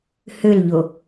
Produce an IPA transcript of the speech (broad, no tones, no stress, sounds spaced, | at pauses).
h ø l ʎ o